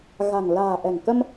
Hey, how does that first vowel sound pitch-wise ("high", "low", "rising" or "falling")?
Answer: low